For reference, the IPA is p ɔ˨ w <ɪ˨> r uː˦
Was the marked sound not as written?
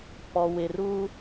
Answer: no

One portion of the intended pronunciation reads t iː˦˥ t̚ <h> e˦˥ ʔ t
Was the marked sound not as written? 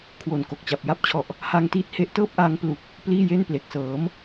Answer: no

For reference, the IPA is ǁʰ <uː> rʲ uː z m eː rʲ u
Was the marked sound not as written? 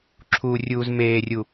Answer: no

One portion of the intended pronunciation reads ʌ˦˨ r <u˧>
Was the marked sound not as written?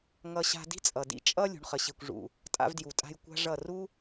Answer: yes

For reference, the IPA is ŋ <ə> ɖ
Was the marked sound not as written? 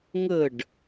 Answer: no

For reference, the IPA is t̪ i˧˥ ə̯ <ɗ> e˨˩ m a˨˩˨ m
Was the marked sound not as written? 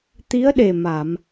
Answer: no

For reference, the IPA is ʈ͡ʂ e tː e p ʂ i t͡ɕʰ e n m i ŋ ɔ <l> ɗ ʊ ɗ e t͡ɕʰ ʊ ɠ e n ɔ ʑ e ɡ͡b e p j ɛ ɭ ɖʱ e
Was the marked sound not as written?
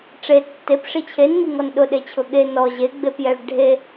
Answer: yes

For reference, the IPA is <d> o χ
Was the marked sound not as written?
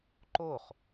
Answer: yes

